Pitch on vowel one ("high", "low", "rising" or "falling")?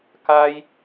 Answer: high